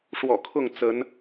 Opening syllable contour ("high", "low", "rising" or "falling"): low